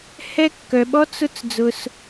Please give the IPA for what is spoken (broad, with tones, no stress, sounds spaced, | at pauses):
h ɛ˧ kː œ˩ ɓ ɔ˧˥ t͡s ʊ˧˥ t͡s d͡z ʊ˩ s